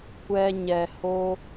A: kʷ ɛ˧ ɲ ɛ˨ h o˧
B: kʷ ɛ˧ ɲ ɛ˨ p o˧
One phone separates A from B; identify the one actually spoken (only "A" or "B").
A